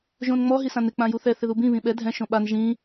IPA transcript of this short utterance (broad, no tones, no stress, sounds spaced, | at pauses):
ʒ õ n ŋ͡m ɔ ɦ i s ã n ɪ k͡p ã j u θ ɛ θ ɪ ð u b ĩ β ĩ ɓ ɛ dʱ ɛ̃ ʃ õ ɓ a n ʒ ĩ